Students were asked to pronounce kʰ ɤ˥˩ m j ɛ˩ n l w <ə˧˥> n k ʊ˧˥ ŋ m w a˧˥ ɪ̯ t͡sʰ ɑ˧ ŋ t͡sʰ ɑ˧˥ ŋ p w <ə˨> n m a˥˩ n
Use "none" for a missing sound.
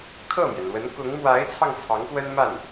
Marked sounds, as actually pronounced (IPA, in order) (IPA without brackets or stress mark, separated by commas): ə˧˥, ə˥